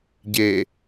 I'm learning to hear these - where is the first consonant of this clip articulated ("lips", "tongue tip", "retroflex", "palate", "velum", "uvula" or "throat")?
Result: palate